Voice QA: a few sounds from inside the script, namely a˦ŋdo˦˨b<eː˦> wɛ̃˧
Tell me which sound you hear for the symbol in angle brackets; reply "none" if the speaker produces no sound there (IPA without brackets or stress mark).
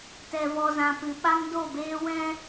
eː˦